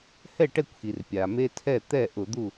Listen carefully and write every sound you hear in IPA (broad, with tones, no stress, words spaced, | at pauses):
hɛ˥˨ʈɛ˥˨kʷxi˩r pʲa˩me˦tʰɛ˥˨ t̪ɛ˥˨ʔʊ˧˩˧d̪u˥˨